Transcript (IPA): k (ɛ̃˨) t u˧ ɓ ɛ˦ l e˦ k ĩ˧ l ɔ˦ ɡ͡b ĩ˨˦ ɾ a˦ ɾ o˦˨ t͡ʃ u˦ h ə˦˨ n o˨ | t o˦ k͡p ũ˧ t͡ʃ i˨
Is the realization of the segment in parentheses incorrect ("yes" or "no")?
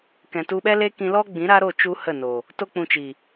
no